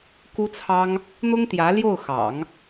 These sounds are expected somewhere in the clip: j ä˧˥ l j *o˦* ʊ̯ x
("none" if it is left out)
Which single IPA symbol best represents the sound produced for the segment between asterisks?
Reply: o˥˩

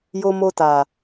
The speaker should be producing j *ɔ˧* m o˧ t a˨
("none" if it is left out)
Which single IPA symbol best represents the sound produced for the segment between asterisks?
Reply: o˧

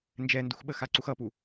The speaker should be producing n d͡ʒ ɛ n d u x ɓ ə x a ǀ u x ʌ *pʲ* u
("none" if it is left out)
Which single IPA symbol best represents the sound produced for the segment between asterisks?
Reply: p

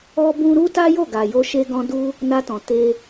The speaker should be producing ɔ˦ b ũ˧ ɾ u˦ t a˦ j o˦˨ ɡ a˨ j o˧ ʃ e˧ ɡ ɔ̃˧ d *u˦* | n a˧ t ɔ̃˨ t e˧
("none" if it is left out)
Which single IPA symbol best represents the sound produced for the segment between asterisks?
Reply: u˦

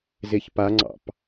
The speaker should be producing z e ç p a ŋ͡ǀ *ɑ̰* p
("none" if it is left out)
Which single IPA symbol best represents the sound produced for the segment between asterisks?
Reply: ɑ̰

